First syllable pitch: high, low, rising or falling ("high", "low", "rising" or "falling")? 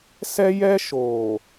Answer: high